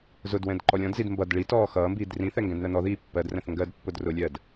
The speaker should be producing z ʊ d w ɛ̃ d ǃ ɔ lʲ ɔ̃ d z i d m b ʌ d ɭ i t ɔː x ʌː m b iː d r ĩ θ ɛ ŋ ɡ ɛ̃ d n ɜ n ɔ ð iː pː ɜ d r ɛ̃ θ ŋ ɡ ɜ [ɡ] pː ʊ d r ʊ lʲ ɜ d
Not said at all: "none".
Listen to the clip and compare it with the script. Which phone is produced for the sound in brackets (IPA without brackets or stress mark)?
d